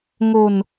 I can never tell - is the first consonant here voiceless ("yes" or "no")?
no